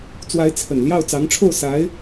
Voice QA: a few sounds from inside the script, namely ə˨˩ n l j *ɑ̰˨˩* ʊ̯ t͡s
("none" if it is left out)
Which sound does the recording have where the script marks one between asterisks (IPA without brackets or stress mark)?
ɑ˥˩